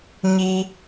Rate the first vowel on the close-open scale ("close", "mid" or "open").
close